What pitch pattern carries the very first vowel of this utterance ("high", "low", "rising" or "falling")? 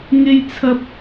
high